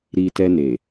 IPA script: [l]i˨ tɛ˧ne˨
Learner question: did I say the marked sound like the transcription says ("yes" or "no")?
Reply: no